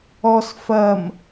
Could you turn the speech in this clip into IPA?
ɔs fɐm

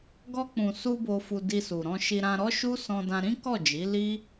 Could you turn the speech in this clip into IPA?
ɡɔ˧k͡pũ˨su˧ bo˧fu˧di˧su˨ ɾɔ̃˧ʃi˧ɾã˧ ɾɔ˦ʃu˦ sɔ̃˧dã˧ ɾĩ˦kɔ˦˨d͡ʒi˨˦ li˦

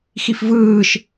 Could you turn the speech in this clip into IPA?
xifvɯːʃ

